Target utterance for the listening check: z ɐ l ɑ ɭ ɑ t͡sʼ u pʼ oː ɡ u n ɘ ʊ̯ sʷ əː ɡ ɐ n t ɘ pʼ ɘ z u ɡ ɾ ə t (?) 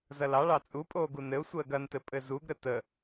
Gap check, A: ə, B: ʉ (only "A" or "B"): A